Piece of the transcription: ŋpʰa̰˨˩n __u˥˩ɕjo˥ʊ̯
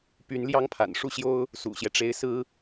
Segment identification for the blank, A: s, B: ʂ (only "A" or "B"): B